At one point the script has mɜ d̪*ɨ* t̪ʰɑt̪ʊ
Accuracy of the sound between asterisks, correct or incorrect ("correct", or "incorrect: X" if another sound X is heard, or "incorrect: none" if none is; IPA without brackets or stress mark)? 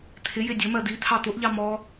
incorrect: i